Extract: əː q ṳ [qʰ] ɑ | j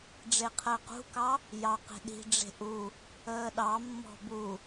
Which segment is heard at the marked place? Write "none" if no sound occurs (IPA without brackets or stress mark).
k